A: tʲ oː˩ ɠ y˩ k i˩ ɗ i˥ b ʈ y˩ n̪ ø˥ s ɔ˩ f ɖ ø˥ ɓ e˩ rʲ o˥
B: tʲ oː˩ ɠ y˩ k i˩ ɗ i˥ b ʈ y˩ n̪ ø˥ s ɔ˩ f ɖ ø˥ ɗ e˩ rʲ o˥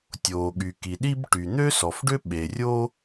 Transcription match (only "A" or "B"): A